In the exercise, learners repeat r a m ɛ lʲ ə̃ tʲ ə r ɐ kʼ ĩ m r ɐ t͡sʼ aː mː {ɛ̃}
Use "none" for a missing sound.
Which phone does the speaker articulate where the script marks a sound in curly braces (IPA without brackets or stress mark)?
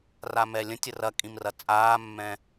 ɛ̃